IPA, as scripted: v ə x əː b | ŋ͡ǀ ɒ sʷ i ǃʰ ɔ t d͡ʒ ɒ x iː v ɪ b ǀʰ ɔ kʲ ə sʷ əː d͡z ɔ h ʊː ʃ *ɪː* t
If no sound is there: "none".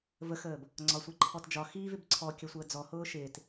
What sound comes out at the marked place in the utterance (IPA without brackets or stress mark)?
ɪː